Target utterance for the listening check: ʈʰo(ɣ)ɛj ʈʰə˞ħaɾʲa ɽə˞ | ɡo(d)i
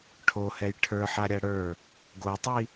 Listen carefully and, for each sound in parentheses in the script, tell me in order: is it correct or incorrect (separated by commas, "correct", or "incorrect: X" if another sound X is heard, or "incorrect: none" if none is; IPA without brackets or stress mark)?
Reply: incorrect: h, incorrect: tˤ